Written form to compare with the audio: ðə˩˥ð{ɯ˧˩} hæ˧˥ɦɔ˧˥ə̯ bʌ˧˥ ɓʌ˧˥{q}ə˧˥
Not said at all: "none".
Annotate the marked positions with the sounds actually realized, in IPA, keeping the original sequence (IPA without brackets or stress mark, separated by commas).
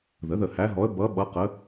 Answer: ə˧˩, q